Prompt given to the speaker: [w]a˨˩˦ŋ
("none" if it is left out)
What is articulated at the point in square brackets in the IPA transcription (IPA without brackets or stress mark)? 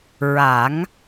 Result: ɹ